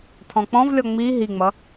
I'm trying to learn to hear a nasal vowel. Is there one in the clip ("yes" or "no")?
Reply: yes